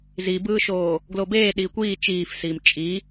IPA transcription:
z i b ɯː ʃ oː | ɡ l o b eː ɗ iː kʷ iː t͡ʃ iː f s iː m t͡ʃʼ i

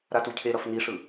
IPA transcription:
ɾ a t u cʰ e ɾ ʌ f n i ʂ ɯ

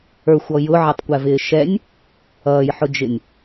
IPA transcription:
ə˞ xʷ ɔ j ʊ ʕ ɪ tˤ kʷ æ v ɪː ʃ ɛ nʲ | ʌː j ħ ʊ d͡ʒ ɪ nʲ

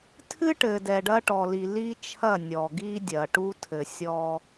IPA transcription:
tʰ ɨ˦ ʈ ɘː˨ d ɛ˨ ɖ ɐ˦ ʈ ɔ˨ l i˨ l i˦ t͡ʃʰ ɐ˦˨ nʲ ɔ˨ ɡ i˦ dʲ ɐː˨ ʈ u˦ tʰ ɘ˨ sʲ ɔ˦

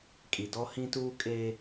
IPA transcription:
kʼ i˨ d ɔ˦ h ĩ˦ t uː˦ kʼ e˦

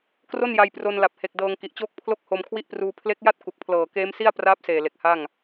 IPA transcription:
k r o˥˩ n j a˧ j p r o˧ n l a˨˩ p̚ h e˨˩ k̚ d ɤː˧ ŋ k i˨˩ ʔ t͡ɕ oː˥˩ k̚ pʰ l o˥˩ k̚ h o˧ m kʰ w i˥˩ ʔ p r uː˧ pʰ l e˦˥ k̚ j a˥˩ t̚ k u˨˩ k̚ pʰ l ɤː˨˩ k eː˦˥ m s i˥˩ a̯ p r aː˦˥ p̚ s eː˨˩ l e˨˩ k̚ h a˥˩ ŋ

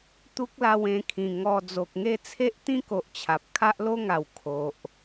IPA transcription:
t̪ u˦ k̚ l a˧ w ẽ˧ kʰ ĩ˨˩ ŋ ɔ˧ d͡z o˨ k̚ ŋ e˥˧ t͡sʰ e˦ ʔ t̪ ĩ˦ k o˨ ʔ t͡ɕʰ a˨ p̚ kʰ a˦ ʔ l o˦ ŋ a˨˩ w kʰ o˨ ʔ

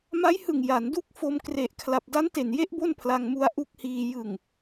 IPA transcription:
m a˦˥ j h ɯ˨˩ ŋ j a˩˦ n d u˦˥ k̚ f o˧ m k r e˨˩ ʔ kʰ l a˨˩ p̚ d a˦˥ n t e˨˩ n j e˦˥ ʔ b o˥˩ n pʰ l a˧ ŋ m u˦˥ a̯ ʔ u˦˥ k̚ h iː˧ j ɯ˨˩ ŋ

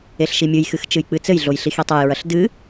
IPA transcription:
e ɬ ʃ i mʲ ɨ j x ɨ x t͡ʃ ɨ j k͡p ɨ t͡s ɘ j ɮ o j ɬ i x i tˤ ɐ j ɹ ɐ ɬ d ɨ

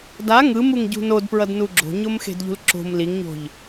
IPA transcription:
d a ŋ ɯ m u ŋ ɟ ṳ n o d p ɹ ʌ d n u ɡ͡ǁ o̤ ɲ o m x e̤ d ʎ ṳ l ǁ o̤ m l i ŋ ɲ o̤ ʎ

